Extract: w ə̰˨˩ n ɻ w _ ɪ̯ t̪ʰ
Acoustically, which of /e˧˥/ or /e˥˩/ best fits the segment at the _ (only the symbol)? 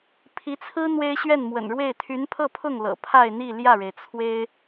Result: e˥˩